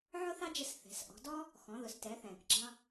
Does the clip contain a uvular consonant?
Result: no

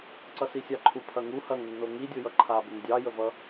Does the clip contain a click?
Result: yes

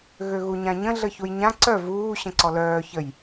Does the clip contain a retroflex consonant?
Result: no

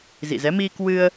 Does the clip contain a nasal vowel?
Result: no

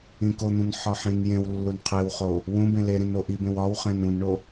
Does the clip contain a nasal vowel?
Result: yes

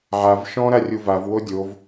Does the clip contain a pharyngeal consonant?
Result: yes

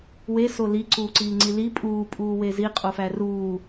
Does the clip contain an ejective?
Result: yes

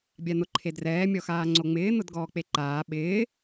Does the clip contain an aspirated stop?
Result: yes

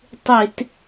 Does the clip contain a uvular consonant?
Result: no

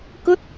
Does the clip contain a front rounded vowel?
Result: no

